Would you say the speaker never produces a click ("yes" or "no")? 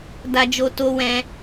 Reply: yes